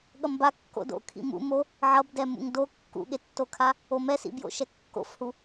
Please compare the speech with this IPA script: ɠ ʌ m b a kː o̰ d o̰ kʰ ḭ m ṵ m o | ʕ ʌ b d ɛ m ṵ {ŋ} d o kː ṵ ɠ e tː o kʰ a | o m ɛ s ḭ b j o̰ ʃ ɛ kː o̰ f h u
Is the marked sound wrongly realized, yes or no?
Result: no